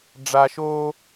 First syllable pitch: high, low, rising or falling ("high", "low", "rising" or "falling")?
low